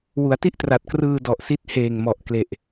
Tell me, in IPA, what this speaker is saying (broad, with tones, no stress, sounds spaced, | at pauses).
w u˩˦ a̯ t i˥˩ ʔ t r a˨˩ t̚ k r ɯː˧ d ɔ˨˩ ʔ s i˦˥ t̚ h eː˨˩ ŋ m ɔ˨˩ ʔ k l e˨˩ ʔ